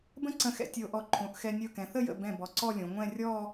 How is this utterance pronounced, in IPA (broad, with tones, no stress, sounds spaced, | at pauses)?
b ə̃˥ ǀ ə̃˧ x ɛ̰˧ tʲ ɤ˧ o̯ ʔ ɔ˧˩ ǃʰ õ˩˧ ʔ x ɛ˧ nʲ ɤ˧˩ k ɛ̃˩˧ θ ə˥˧ j ə̰˧˩ b ɛ̃˧˩ b ɔ˩˧ ǀ ɔ˥˧ lʲ õ˩˧ ŋʷ ɛ̃˥˧ rʲ ɔ˥˧